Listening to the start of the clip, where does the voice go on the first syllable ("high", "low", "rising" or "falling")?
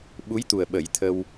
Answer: rising